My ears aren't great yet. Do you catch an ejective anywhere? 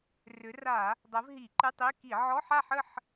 no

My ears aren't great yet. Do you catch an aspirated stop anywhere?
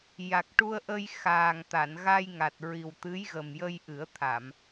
yes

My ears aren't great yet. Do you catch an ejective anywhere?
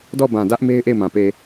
no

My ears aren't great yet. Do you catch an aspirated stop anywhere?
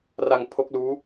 yes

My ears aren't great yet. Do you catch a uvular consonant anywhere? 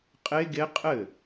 yes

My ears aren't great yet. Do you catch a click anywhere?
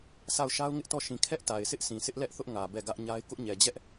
no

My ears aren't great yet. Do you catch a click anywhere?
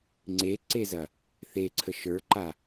yes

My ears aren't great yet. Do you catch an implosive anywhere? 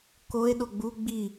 yes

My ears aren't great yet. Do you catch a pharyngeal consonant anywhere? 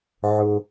yes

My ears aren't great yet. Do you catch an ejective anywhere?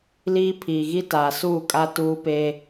yes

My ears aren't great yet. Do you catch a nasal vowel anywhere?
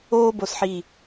no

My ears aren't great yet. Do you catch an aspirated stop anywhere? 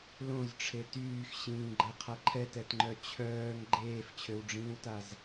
yes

